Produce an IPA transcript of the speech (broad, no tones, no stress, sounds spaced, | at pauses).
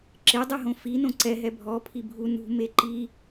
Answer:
ǁ ɪ dˤ ɛ ɦ õ f i n õ ǀ ɛ ɦ ɛ bʱ ɔ pʰ i bʱ u n ṳ m e ǃ i